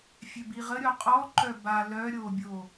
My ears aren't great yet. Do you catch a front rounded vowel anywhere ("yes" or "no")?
yes